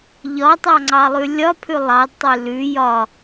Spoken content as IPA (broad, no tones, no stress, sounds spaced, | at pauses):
ʎ ɒ tˤ ɑ ŋ͡ǀ ɑ lˠ ʉ lʲ ɒ pʰ ʉ lˠ ɑ d tˤ ʉ l ʉ j ɒ